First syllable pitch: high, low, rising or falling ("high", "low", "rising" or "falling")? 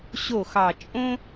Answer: falling